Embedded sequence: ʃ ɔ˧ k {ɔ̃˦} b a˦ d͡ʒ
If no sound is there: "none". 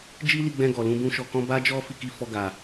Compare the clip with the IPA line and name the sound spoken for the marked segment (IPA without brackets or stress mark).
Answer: ɔ̃˦